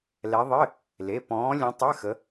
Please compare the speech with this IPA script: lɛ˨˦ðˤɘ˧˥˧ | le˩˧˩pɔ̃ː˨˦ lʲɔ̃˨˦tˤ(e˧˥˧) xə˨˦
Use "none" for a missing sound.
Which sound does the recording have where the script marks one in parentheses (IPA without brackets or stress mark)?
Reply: ɘ˧˥˧